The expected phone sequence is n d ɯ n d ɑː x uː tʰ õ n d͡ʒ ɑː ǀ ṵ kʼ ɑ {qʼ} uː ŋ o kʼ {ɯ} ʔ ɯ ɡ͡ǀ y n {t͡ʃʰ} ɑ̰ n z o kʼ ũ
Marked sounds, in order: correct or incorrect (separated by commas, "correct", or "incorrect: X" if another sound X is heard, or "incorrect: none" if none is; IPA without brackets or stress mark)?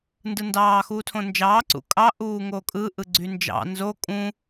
incorrect: ʔ, correct, incorrect: d͡ʒ